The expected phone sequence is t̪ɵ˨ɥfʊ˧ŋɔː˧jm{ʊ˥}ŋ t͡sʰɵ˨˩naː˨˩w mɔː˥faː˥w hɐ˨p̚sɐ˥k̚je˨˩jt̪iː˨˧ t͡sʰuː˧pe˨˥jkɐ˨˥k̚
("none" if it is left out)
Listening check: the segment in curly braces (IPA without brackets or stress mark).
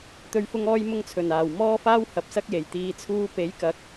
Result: ʊ˧